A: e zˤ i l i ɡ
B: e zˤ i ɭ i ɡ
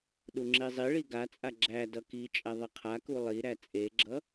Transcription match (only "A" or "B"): B